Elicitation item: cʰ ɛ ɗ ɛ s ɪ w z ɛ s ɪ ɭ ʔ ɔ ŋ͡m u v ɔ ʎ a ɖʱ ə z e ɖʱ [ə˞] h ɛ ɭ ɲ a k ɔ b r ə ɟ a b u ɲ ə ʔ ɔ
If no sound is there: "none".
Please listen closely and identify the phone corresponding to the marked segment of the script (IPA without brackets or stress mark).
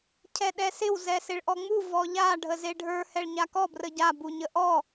ə˞